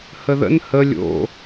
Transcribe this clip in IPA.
h ə ð ə̰ n h ə lʲ o̰

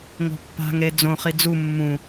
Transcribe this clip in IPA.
ŋ o̤ pː a̤ ŋ ɾ e d͡z õ χ i d͡z u mː ũ

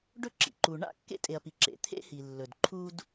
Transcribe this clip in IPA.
ɖ ɵ˥ ǁ ḭ˩ ǃ u˩ ɳ a̰˥ kː ḛ˥ tʼ e˩ ɐ̯ p i˩ ǁ ḛ˩ t̪ʰ ḛ˥ h i˩ lː ɵ˩ d ǃʰ u˥ d

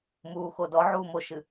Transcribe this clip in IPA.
m uː x o d ɔ ʕ uː m o ʃ ɨ

